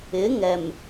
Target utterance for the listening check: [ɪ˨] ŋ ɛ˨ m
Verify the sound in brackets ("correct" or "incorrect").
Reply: incorrect